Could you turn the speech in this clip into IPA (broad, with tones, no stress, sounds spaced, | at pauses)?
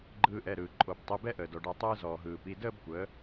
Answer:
ɡ͡ǃ ɯː˧ ʔ ɛ˩˧˩ ɾ ɯː˩ ǃʼ o˧˩˧ b tˤ i˩˧˩ b ɛ˥˧ ʔ əː˩ d ɔ˩ ɖ ɛ˧˩˧ tˤ ɯː˧ z ɔː˩ ɦ ɯː˩ p i˩˧˩ d əː˥˧ b kʷ əː˩˥